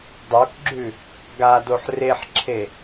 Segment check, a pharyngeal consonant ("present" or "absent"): present